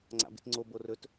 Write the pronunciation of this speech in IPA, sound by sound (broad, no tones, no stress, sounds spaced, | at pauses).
ŋ͡ǀ a̰ b ḭ t ŋ͡ǀ o b o r ɵ t